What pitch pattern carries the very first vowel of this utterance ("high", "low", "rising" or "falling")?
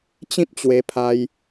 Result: high